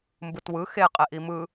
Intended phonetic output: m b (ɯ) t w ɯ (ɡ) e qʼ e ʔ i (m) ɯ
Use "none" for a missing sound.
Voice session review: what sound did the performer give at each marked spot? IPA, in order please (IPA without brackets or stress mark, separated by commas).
ɯ, x, m